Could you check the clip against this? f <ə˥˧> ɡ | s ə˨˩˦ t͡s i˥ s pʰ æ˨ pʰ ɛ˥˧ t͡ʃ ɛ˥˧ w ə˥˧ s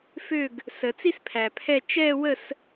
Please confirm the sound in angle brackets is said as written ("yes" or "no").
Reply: no